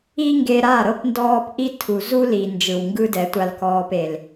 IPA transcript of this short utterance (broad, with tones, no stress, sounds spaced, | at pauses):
i˧ ŋ ɡ e˧ ɾ a˦˨ ɾ ɤ˧ p n d ɔː˦ p ʔ i˦ tʰ u˨ z u˦ l i˨ n d͡ʒ ɯ˨ w ŋ ɡ ɯ˦ d ɛ˨˦ tʷ a˧ l k ɔː˧ p e˨ l